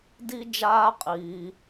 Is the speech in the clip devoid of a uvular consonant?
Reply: no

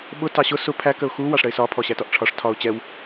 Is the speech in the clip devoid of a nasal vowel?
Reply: yes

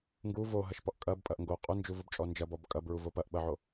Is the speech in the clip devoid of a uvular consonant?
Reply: no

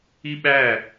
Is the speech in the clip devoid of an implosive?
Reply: no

